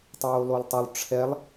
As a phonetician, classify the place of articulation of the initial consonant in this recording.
alveolar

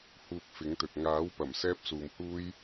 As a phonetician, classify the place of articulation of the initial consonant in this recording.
glottal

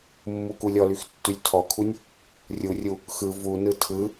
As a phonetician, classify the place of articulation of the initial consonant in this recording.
labial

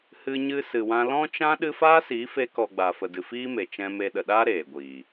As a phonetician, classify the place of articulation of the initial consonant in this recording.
glottal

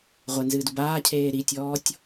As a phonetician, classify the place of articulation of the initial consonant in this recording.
uvular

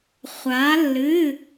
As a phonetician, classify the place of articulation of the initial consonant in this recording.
uvular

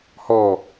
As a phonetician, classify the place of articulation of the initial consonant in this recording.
glottal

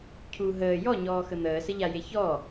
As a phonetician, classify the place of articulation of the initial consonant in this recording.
palatal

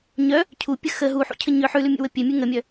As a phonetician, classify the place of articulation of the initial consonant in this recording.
palatal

